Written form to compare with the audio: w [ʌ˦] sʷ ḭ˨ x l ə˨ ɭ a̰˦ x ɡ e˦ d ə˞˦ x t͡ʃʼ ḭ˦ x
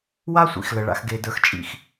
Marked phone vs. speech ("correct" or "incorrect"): incorrect